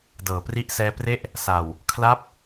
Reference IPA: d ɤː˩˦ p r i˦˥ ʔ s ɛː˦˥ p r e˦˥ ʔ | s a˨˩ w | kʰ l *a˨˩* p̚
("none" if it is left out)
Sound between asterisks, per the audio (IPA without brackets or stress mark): a˥˩